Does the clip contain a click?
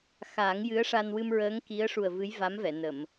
no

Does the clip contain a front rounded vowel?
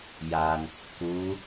no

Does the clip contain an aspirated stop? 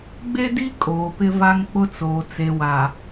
no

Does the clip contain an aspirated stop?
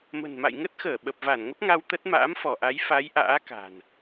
no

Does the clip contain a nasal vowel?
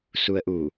no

